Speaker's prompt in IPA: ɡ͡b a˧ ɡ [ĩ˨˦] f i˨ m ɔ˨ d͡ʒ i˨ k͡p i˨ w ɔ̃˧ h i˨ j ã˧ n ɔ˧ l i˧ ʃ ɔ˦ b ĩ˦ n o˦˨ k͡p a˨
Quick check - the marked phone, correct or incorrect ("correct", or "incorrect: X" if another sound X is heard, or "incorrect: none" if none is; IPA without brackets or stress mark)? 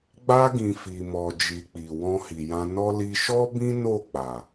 incorrect: ĩ˨